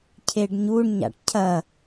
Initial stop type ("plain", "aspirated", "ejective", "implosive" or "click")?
aspirated